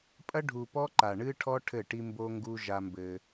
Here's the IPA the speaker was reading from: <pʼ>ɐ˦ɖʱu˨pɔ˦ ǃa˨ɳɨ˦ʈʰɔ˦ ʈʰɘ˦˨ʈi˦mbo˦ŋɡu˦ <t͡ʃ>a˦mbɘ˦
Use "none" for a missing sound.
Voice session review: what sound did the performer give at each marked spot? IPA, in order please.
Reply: pʼ, ʒ

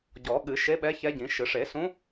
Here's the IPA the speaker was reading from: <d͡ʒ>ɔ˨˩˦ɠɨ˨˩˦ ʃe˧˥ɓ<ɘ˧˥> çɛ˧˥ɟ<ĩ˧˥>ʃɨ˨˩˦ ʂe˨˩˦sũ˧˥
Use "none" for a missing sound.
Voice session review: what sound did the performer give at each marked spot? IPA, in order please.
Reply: ɟ, ɛ˧˥, ĩ˨˩˦

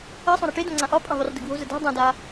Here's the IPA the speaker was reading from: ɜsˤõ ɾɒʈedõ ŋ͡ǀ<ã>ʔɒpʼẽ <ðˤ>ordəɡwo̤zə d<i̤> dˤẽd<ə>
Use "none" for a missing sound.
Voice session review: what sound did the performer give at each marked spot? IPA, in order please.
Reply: ã, ðˤ, e̤, a

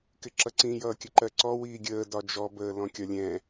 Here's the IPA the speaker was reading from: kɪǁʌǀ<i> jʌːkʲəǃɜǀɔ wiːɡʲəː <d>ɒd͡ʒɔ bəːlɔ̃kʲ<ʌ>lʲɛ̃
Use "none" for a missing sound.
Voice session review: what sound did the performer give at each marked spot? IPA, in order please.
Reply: ĩ, d, ɒ

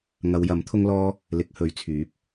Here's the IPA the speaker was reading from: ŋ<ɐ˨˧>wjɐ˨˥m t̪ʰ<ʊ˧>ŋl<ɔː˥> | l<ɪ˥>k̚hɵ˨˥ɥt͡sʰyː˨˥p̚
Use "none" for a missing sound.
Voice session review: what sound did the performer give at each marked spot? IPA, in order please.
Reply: ɐ˨˧, ʊ˥, ɔː˥, ɪ˨˥

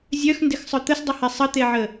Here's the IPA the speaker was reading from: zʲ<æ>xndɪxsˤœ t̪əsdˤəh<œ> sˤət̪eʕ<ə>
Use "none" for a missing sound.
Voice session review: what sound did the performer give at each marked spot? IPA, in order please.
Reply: œ, ɛ, ə

